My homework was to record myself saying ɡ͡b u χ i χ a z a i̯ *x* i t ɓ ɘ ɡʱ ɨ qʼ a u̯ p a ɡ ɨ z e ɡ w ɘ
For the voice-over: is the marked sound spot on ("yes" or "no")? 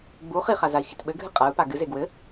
yes